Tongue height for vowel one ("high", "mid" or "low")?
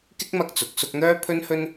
high